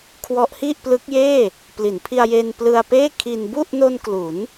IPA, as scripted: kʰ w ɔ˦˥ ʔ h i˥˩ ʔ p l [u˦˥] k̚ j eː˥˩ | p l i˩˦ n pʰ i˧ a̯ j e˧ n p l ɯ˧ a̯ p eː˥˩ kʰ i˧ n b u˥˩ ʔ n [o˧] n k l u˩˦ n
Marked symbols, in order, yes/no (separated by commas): no, yes